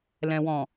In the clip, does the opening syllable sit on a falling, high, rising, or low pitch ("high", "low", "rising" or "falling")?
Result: low